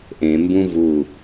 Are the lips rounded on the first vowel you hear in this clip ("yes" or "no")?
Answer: no